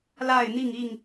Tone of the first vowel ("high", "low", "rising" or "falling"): falling